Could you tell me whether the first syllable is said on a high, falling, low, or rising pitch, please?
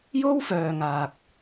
high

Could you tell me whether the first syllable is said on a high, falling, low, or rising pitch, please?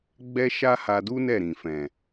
high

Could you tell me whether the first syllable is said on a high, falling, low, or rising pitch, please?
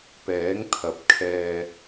rising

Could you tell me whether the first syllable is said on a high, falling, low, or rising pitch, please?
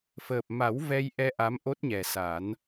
low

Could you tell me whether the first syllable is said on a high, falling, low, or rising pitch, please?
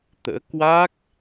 rising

